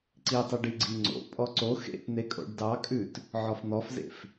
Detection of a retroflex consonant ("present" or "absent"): present